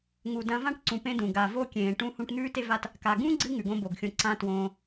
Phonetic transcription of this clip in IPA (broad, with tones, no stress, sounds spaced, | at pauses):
ŋ u˨ d ɐ̃˧ v ã˦ ʈ ǀ ũ˨ p ẽ˦ d ũ˨ ɡ a˨ v o˦ kʲ ẽː˨ ʈ ũ˧ h ũ˧ ʈ n̪ ʉː˦ t e˦ v a˦ t | k a˨ ɡ ũ˦ ɡ͡ǀ ɨ˧ ŋ ʉ˨ ɡ õ˦ b o˨ ɡ xʲ õ˧ ǀ ã˧ t w õː˧